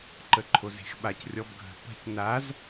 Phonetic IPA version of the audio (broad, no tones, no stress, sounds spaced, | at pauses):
ǃ ə ǃʰ o z e̤ x ɓ a c rʲ ɔ b ɡʱ ə̤ p ə̤ c n a z